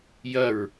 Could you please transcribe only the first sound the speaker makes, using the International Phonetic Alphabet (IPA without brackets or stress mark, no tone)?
j